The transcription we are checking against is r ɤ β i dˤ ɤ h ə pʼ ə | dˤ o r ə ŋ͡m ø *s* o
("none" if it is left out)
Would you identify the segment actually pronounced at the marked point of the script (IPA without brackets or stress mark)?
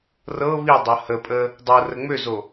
z